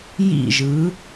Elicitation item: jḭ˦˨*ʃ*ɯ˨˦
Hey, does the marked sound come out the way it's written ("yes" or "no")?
no